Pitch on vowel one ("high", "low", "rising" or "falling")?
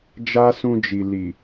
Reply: high